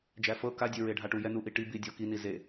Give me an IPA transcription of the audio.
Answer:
d͡ʒ æ f ɤ k a dʲ e ɹ e ɖʱ a ʈ u j ɛ n u ʔ i ʈ i b i dʲ ɔ k i n i z e

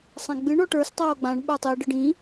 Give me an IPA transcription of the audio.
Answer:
sˤ ã ɡ͡b ɨ ɳ ɔ ʈ ə˞ s tˤ oː ɡ͡b ã ɳ ɓ ə˞ tˤ i ɖ ɨ ɖ ĩ

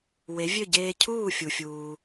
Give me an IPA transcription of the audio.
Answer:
w e˩˥ vʲ ø˥˩ ɟ eː˧ cʰ uː˥˩ fʲ u˩ fʲ uː˩

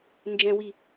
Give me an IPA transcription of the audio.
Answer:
n d͡ʒ ɛ̃ w i

